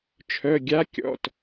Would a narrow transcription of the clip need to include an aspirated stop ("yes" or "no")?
yes